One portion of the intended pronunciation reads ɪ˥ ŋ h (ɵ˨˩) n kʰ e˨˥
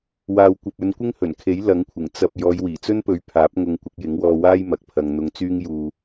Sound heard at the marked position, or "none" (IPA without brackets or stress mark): ɵ˨˩